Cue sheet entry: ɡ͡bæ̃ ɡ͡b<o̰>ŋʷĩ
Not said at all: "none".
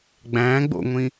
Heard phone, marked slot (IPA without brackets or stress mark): o̰